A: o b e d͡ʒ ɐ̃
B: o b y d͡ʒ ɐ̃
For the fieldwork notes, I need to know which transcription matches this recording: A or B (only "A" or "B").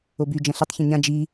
B